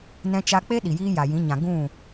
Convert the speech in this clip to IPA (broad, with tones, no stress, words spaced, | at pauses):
nɛ̃˧t͡ʃa˧k͡pe˦ ɗi˨jiː˦ja˨jĩ˨˦ ɲã˨ɡũ˦˨